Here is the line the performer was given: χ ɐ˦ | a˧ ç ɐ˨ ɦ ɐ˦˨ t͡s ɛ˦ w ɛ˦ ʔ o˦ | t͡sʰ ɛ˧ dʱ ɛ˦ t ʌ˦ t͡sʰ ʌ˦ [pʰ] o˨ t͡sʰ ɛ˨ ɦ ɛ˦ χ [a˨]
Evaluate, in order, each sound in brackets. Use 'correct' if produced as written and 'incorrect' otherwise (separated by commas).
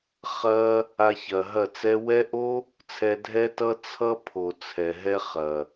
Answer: correct, incorrect